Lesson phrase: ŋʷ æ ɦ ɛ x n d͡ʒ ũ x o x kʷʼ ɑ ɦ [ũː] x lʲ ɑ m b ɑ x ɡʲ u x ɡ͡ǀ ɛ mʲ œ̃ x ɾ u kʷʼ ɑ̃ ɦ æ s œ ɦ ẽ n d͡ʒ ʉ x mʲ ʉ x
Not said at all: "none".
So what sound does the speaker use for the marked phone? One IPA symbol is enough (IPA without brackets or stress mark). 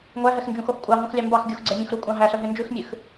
ũ